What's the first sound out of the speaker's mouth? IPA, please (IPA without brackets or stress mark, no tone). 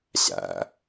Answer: ɕ